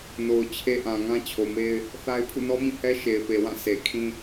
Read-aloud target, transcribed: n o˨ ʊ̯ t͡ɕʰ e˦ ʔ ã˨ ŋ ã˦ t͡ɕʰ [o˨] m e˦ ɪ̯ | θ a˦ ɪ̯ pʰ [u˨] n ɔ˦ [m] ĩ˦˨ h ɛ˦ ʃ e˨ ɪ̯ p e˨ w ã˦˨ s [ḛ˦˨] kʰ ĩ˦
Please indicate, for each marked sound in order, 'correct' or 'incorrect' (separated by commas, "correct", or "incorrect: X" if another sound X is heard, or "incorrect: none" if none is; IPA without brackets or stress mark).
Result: correct, incorrect: ṵ˦˨, correct, incorrect: e˨